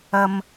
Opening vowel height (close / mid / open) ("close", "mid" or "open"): open